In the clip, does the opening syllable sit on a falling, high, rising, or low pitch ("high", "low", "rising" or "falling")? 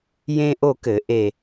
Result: high